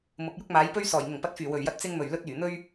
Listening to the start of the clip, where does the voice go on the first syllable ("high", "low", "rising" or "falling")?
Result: rising